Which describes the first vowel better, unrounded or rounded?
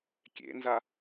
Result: unrounded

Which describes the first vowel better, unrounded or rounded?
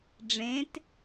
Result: unrounded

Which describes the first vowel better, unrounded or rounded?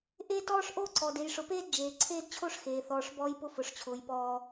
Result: unrounded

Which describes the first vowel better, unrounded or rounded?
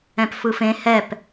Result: unrounded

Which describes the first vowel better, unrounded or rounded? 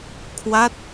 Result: unrounded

